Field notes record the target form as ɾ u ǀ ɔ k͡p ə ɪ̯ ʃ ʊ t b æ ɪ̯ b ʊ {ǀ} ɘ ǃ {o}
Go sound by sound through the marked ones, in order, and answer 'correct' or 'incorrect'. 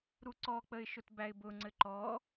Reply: incorrect, incorrect

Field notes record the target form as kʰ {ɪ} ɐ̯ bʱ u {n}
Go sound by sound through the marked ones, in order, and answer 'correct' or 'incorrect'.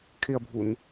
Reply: correct, correct

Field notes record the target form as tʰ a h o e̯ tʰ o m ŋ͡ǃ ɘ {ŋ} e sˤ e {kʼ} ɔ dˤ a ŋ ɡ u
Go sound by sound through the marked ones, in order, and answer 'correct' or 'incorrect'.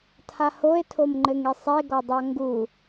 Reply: correct, incorrect

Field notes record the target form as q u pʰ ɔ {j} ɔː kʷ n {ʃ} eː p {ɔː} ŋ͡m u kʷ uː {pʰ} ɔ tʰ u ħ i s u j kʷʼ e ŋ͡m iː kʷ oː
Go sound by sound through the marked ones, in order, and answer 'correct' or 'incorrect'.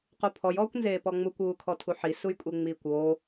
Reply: correct, incorrect, incorrect, incorrect

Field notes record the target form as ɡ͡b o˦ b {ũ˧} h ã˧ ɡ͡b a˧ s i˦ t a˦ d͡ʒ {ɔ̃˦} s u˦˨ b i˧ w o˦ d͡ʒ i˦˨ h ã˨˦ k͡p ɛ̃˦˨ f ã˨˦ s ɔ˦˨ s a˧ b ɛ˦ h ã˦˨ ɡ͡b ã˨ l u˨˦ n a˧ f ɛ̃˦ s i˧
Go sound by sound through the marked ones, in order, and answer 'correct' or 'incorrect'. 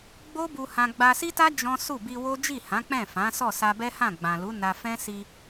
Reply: incorrect, correct

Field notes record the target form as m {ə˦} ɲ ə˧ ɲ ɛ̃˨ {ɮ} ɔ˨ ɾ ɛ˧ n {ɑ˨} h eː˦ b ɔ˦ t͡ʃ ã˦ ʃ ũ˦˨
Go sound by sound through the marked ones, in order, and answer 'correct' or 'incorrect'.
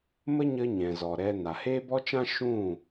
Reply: correct, incorrect, incorrect

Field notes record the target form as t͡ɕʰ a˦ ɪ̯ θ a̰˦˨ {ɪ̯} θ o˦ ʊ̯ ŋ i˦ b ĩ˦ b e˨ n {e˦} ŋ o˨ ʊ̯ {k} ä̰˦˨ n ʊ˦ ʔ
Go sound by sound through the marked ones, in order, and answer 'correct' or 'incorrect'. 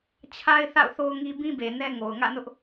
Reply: incorrect, incorrect, incorrect

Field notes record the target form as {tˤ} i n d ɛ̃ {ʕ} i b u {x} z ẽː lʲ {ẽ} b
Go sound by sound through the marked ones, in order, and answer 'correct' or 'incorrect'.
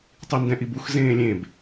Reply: correct, incorrect, correct, correct

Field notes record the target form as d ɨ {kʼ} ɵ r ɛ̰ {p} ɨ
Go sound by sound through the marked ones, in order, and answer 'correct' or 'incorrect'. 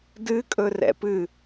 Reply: correct, correct

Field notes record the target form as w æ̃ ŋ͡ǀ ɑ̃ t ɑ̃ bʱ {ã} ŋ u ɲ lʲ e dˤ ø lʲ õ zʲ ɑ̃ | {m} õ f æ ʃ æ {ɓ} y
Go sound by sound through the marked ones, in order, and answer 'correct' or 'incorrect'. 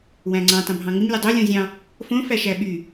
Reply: incorrect, incorrect, correct

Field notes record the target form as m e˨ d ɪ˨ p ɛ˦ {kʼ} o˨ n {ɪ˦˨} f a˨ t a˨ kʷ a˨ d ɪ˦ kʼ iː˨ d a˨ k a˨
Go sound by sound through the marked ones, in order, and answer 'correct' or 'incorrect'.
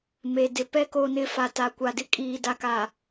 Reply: incorrect, incorrect

